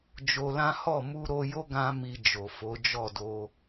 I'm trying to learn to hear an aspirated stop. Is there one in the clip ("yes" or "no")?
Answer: no